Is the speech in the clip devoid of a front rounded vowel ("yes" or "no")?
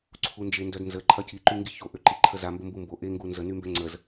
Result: no